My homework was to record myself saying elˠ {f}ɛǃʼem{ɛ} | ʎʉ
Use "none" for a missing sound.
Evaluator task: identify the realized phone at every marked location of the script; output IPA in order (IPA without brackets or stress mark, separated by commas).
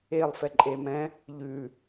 f, ɛ̃